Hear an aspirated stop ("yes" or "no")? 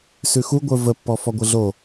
no